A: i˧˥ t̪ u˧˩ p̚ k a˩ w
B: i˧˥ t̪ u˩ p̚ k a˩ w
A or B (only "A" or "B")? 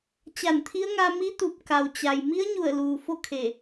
A